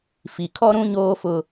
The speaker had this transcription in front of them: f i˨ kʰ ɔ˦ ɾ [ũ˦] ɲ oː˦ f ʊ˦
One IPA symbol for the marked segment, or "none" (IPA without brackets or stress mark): ũ˦